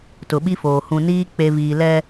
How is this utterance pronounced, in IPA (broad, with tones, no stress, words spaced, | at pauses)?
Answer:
tʊ˨ɓi˦foː˨ hũ˨niː˦ k͡pe˨ viː˨lɛ˦